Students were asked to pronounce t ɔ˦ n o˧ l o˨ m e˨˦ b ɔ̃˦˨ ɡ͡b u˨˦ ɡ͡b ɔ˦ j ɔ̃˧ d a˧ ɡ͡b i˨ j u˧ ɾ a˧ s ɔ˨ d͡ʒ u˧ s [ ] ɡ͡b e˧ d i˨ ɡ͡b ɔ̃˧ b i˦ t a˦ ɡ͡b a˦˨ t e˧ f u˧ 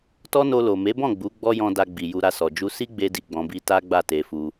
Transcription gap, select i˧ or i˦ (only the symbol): i˦